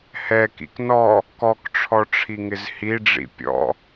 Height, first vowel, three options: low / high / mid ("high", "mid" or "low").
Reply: mid